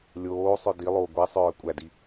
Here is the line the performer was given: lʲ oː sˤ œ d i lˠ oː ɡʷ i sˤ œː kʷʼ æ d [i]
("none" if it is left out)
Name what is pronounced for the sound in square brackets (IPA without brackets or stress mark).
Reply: i